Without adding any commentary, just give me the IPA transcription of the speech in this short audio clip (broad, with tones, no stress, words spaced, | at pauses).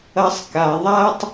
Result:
ɐ˦sˤka˧ ðˤa˦tˤ